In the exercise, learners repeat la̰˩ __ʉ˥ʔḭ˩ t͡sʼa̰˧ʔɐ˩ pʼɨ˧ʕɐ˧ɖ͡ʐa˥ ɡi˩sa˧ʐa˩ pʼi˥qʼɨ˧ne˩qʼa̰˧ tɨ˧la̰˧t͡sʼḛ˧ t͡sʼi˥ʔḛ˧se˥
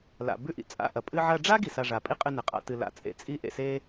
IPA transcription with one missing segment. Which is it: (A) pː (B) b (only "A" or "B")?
B